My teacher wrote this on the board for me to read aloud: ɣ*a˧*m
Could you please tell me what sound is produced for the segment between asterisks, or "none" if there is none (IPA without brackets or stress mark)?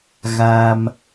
a˧